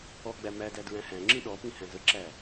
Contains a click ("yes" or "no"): yes